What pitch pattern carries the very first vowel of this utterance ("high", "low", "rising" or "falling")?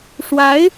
rising